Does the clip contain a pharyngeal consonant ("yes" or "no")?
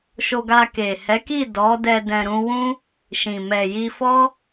no